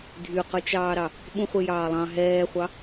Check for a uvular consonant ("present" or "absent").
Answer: present